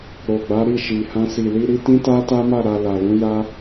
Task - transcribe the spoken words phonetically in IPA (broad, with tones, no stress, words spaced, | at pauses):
ɾo˨ɡ͡ba˨˦ ɾi˦˨ʃi˨hã˧ si˨li˧ɾi˧ tĩ˦ta˦ta˦ma˦˨ ɾa˧la˨lũ˨˦ ja˦